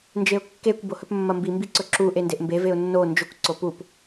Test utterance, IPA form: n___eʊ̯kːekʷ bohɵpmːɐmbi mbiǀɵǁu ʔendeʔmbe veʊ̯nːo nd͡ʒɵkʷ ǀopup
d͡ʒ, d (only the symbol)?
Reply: d͡ʒ